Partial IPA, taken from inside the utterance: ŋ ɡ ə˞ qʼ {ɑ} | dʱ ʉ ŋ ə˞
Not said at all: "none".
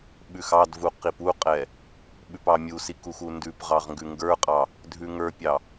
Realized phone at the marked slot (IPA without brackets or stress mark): ɑ